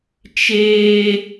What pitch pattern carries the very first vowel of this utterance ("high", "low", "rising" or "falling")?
high